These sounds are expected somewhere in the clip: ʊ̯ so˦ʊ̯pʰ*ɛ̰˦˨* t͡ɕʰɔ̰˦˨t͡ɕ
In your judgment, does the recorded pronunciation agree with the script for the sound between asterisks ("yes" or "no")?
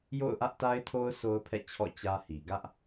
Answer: yes